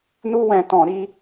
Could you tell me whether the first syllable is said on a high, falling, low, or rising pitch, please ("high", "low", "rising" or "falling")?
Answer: high